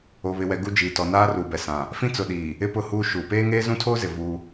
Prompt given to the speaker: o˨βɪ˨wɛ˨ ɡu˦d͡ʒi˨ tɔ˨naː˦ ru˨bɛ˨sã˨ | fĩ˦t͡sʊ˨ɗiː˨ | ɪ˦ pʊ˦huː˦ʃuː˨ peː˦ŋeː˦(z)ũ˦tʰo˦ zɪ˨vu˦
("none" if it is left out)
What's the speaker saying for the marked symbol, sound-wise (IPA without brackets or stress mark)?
z